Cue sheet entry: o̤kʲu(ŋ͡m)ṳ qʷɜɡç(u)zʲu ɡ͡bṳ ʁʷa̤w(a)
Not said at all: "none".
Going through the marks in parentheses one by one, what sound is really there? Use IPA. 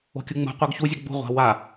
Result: ŋ͡m, u, a

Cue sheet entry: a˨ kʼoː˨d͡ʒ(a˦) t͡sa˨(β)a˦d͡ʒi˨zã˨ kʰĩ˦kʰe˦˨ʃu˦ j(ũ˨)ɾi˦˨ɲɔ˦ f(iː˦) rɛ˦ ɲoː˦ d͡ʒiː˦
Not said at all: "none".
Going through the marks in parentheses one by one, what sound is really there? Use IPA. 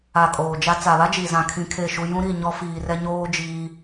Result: a˦, β, ũ˦, iː˦

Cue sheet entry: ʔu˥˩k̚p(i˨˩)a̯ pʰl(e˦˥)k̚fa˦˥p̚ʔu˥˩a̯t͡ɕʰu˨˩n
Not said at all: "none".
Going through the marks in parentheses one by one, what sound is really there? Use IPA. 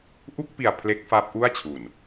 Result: i˨˩, e˦˥

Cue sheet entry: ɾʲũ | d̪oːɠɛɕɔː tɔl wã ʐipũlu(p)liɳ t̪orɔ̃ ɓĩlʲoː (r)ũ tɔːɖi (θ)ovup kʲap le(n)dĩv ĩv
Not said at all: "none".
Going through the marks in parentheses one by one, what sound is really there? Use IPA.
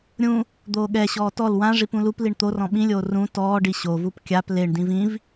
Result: p, r, ɕ, ɳ

